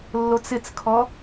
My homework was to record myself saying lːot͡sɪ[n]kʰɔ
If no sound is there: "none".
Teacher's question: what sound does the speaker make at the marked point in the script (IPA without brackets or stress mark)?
t͡s